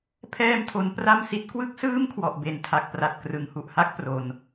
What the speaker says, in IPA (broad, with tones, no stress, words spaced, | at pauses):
pʰɛː˧mtʰo˩˦n pra˥˩msi˦˥t̚ kwɯ˥˩k̚sɯː˥˩mkʰwɔ˨˩ʔ be˩˦ntʰa˨˩k̚pra˨˩t̚ krɯ˩˦ŋhu˨˩ʔha˥˩k̚ pro˨˩n